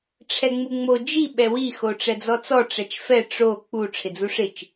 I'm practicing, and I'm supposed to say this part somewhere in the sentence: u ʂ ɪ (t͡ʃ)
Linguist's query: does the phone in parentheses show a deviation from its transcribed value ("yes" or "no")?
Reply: no